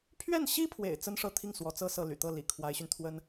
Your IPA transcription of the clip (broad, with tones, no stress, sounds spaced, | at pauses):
pʰ ɥ ɛ˥˩ n ɕ i˥ pʰ w ḛ˨˩ ɪ̯ t͡s ə˥ n ʂ ɤ˥˧ t̪ʰ i˥˩ ŋ s w ɔ˧˥ t͡s ɤ˥ s ɤ˥˩ l y̰˨˩ t̪ ɤ˥˩ l ḭ˨˩ kʰ w a˧˥ ɪ̯ ɕ y˧ n t̪ʰ w ə˥ n